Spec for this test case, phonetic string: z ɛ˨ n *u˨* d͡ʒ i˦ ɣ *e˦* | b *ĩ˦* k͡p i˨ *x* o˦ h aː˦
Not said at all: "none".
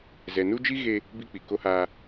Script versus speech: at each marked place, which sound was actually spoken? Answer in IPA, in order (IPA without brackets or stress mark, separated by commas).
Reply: u˦, e˦, i˦, k